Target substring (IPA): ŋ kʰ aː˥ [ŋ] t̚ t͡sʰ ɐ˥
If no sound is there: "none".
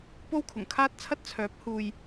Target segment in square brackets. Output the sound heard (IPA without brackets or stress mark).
none